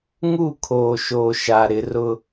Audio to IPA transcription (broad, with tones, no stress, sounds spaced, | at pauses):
ŋ u˦˨ kʰ oː˨ ʃ oː˨ ʃ a˨ ɾ ɪ˨˦ r ʊ˦